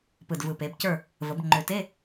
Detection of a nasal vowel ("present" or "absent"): absent